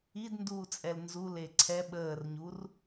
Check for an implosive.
present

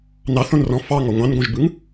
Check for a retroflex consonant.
absent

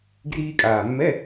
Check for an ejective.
present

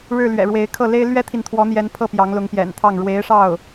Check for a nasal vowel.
absent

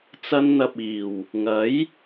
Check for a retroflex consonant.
absent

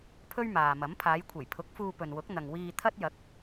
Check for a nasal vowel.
absent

